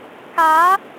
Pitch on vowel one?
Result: rising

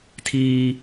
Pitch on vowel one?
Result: high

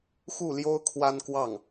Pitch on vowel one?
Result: falling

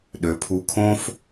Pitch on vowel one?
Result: rising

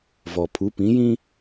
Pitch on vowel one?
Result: low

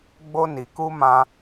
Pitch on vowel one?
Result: high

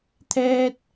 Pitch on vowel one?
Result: high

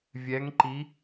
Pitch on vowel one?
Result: rising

